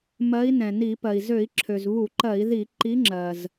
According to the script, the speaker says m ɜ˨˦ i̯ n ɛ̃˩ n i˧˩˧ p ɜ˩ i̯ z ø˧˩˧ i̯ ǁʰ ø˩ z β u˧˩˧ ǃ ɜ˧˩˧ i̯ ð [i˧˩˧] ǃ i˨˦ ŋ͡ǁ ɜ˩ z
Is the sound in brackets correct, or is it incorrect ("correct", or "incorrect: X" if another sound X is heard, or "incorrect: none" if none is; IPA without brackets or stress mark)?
correct